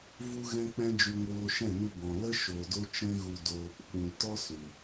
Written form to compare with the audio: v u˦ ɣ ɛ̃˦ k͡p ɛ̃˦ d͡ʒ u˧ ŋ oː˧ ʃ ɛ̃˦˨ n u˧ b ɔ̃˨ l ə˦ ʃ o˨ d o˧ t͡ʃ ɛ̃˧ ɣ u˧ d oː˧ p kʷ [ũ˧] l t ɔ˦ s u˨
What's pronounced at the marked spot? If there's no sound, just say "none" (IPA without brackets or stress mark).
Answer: ũ˧